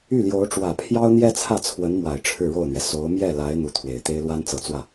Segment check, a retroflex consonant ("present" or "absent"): present